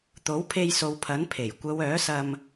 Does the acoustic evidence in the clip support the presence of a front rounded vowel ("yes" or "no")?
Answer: yes